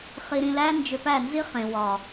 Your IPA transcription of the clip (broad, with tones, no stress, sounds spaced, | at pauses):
χ i˧ ɾ ĩ˧ l æ˦ n d͡ʒ ʏ˧ p æ˦˨ n z i˦ χ ẽ˨ w ɒ˨